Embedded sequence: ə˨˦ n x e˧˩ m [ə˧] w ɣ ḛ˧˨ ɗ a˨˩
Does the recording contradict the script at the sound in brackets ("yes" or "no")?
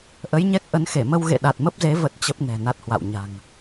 no